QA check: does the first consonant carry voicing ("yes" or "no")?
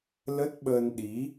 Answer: yes